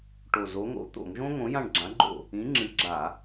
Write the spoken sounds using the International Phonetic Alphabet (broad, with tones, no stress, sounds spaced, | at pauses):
ʈ o˨˩ z o˨˥ ŋ o̰˨˥ t̪ o̰˧˩˧ ŋ ʒ õ˥ ŋ õ˨˥ j ã˦˨ ɳ ɡ͡ǁ ã˨˥ ɡ͡ǃ o̰˦˨ | ĩ˨˥ ŋ͡ǁ ɨ˨˥ ɡ͡ǁ a˧˩˧